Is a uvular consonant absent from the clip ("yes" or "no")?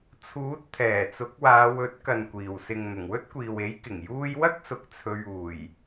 yes